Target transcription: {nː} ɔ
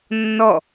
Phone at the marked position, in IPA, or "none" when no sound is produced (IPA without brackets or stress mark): nː